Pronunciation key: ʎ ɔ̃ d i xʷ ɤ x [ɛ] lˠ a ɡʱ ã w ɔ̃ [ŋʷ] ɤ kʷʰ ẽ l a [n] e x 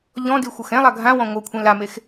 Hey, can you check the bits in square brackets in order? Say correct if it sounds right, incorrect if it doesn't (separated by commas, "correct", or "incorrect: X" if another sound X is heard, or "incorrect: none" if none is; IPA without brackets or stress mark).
incorrect: ɛ̃, correct, incorrect: m